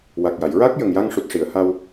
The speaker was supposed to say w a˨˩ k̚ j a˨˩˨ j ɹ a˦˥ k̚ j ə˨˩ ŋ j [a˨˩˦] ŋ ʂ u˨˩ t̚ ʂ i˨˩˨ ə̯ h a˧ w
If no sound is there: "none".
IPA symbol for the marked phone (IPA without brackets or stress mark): a˧